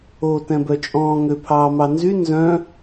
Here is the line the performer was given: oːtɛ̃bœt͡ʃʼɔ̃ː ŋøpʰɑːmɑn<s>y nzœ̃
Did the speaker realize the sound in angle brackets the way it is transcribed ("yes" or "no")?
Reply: no